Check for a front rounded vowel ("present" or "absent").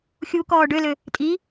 present